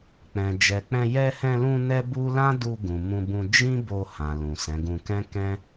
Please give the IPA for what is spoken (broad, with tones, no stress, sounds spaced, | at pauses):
k͡p ɛ̃˨ d͡ʒ ɛ˨ k͡p ɛ̃˧ j ɛ˧ h ɛ̃˧ l ũ˧ n ɛ˦ b u˦ l ã˦ d u˧ ɡ ũ˨ m ũ˧ b ũ˧ d͡ʒ ĩ˦ b o˧ h ã˨ l ũ˨ s ɛ̃˨˦ ɡ ũ˧ k ɛ̃˦ k ɛ̃˦